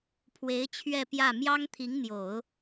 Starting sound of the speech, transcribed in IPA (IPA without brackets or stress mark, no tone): pʰ